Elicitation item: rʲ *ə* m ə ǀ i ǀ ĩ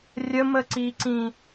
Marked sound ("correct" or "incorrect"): correct